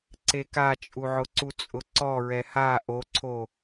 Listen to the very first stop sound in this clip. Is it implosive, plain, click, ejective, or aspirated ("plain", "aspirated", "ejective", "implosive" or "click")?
click